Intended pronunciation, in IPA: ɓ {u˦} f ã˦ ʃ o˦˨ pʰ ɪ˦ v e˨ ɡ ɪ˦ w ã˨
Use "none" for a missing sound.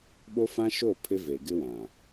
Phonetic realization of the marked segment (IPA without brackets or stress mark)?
o˦